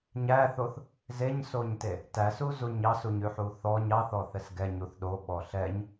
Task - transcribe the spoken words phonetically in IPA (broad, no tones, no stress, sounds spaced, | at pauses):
ɲ æ θ o θ | z e ɲ s o ɲ t e | t æ s u z u ɲ ɑ s u ɲ ʉ ħ u θ ɔ ɲ ɑ θ ɔ θ ɛ s ɡ ɛ ɲ u θ ɗ o ɓ ɔ ɬ ɛ ɲ